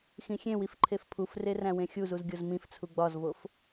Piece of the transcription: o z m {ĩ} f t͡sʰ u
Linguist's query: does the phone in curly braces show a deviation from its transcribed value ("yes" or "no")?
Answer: no